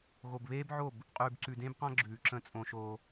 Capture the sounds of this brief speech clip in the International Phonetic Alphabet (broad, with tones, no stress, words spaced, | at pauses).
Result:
ɣo˨bβeː˦bʕo˦˨b | qʼʉː˨bǀʉ˨dẽ˦bqã˦ ɡ͡ǁʉː˨ǁə̃˦˨ t͡sʼõ˦ʃo˦